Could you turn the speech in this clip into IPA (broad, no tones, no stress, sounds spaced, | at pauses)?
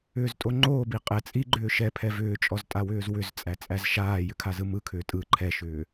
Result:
ʏː z tʼ o ŋ͡ǃ oː b i qʼ ɛ t͡sʼ i ɡ͡ǃ ʏː ʃ ɛ pʰ ɛ v ʏː t͡ʃʼ ɔ z tʼ a w ʏː z w ʏ z t͡sʼ æ t͡sʼ æ z ʃ aː j ʏ kʰ a z ɯ m ɯ kʰ ʏː tʼ ɯ ǃʰ ɛ ʃ ʏː